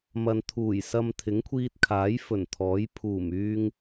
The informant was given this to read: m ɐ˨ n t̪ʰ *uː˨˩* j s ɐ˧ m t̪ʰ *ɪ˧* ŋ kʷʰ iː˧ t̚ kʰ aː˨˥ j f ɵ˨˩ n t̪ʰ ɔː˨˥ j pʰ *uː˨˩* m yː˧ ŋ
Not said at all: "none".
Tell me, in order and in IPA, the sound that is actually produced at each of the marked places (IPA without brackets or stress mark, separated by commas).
uː˨˩, ɪ˨˥, uː˨˩